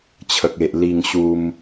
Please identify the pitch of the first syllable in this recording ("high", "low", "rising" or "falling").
high